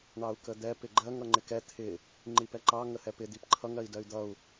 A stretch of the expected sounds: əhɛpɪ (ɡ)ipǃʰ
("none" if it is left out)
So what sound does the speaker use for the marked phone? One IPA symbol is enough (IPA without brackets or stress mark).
d̪